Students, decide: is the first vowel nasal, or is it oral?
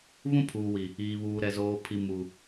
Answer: nasal